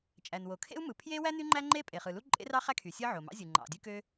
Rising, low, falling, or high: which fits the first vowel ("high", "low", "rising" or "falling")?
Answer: low